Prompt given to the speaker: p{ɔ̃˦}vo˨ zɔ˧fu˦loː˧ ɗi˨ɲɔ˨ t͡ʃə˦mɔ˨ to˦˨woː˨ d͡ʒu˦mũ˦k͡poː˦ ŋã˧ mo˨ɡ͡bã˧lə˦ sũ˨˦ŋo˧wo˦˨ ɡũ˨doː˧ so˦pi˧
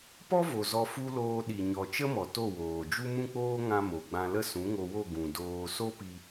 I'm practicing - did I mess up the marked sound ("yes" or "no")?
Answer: yes